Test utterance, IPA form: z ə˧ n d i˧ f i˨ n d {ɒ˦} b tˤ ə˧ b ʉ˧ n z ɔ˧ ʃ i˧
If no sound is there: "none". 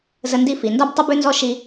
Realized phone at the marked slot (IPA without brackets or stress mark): ɒ˦